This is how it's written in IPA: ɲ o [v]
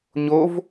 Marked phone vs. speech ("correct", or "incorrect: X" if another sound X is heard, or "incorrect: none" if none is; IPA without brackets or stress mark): correct